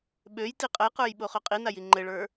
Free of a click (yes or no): no